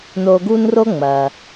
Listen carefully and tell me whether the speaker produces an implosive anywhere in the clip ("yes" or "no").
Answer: no